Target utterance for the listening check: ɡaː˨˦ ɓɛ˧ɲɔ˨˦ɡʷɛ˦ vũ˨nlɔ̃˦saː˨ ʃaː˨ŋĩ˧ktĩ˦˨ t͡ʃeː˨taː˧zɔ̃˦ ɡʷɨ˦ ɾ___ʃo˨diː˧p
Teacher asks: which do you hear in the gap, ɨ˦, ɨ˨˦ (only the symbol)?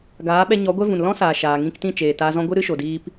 ɨ˦